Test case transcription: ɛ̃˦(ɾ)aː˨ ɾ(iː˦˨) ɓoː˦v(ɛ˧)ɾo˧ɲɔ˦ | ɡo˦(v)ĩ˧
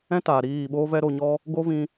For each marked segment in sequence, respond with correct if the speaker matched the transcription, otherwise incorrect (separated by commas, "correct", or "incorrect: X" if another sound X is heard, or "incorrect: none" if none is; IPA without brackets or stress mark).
incorrect: t, correct, incorrect: ɛ˦, correct